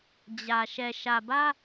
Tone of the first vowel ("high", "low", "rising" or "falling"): low